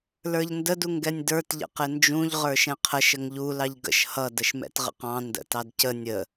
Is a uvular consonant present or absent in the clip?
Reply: present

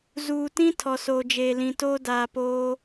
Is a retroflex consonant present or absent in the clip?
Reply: absent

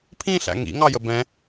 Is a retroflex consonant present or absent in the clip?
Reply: absent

